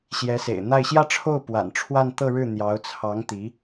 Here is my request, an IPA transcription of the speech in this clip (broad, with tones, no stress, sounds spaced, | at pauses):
ɕ j ɛ˧˥ s ḛ˨˩ ɪ̯ n̪ a˥˧ ɪ̯ ɕ j ä˥˧ ʈ͡ʂʰ o˥˩ ʊ̯ p w a̰˨˩ n ʈ͡ʂʰ w a˥˧ n t̪ ɤ˥˧ ɻ ɻ̩˥˩ n̪ j ɑ˧˥ ʊ̯ t͡sʰ ɑ˧˥ ŋ t̪ i˧˥